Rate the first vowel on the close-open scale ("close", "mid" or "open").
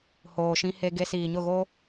mid